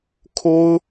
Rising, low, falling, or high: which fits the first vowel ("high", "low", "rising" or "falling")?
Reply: high